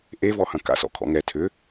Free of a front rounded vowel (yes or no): no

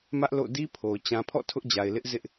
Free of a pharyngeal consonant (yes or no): yes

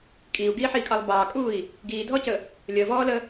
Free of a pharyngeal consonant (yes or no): no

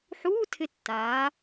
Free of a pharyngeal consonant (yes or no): no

